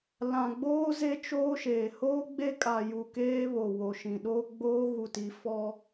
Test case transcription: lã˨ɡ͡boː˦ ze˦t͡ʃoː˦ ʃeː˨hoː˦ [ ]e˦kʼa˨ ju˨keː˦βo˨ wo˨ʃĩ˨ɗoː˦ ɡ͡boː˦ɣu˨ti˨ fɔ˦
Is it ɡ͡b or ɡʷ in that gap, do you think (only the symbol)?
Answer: ɡ͡b